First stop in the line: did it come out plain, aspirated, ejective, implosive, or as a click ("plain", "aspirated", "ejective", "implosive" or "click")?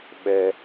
implosive